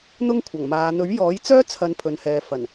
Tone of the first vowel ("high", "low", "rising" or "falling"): high